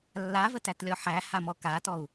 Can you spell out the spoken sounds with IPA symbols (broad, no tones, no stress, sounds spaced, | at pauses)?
lː a v ə t æ t lʲ ɔ ħ æ h a m ɔ k a t ɔ u̯